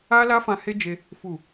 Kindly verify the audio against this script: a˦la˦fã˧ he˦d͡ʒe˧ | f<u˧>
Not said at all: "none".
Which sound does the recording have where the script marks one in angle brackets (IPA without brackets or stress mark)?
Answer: u˨